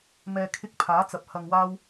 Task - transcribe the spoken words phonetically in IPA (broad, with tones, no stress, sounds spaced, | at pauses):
m ɛː˨ kʰ ɪ˧ k̚ pʰ aː˨˥ t͡s ɐ˨˥ p̚ h ɐ˧ ŋ w aː˥ w